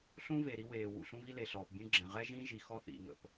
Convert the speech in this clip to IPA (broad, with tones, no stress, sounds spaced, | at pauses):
ɬ ũ˦ v e˨ ɾ i˦ w eː˨ w ṵ˨ ɬ ũ˦ v i˦ l e˨ ɬ ɔː˨ p bʲ ũ˦ ɡ͡ǁ ɛ̃˨ ʁ ɛ˦ ʒ ĩ˦ ʒ i˨ x ɔ˦ θ ḭ˨ ŋ ə̰˨ p